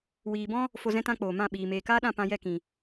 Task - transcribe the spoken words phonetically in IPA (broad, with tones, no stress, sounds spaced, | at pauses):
w iː˨ b ɔ̃˦ | f o˧ z ɛ̃˦ t ã˦ k͡p oː˨ m ã˦˨ ɓ iː˨ m eː˨ k aː˦ ɗ ã˦˨ p ã˧ j ɛ˦˨ k ĩ˨